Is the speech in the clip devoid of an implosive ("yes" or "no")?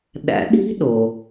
no